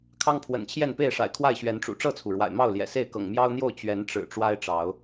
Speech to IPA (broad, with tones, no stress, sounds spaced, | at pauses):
kʰ ɑ˦ ŋ pʰ w ə̰˨˩ n t͡ɕʰ j ɛ˥˨ n p e˥˨ ɪ̯ ʂ a̰˨˩ ɪ̯ kʰ w a˥˨ ɪ̯ ɕ ɥ ɛ˨˦ n ʈ͡ʂ ṵ˨˩ ʈ͡ʂ ɤ˥˨ t͡sʰ u˩ ɻ w a̰˨˩ ɪ̯ m ɑ˥˨ ʊ̯ l j ɛ̰˨˩ s e˥˨ ɪ̯ k ɤ̰˨˩ ŋ m j ɑ˦ ʊ̯ n̪ j o˥˨ ʊ̯ t͡ɕ ɥ ɛ˨˦ n ʈ͡ʂ ɻ̩˨˩ ʈ͡ʂ w a˦ ɪ̯ ʈ͡ʂ ɑ˨˦ ʊ̯